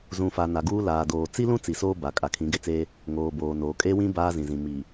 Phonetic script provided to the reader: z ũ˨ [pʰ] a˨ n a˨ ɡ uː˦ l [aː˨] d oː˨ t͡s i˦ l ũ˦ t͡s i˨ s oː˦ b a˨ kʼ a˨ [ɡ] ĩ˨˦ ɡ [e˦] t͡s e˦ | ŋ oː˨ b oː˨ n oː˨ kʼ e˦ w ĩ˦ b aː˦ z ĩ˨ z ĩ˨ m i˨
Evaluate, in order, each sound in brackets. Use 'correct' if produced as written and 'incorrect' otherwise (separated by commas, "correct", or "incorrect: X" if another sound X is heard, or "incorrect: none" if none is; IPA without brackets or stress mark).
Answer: incorrect: f, correct, incorrect: kʰ, correct